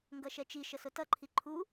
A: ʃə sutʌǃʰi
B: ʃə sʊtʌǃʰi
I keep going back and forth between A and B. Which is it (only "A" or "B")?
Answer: B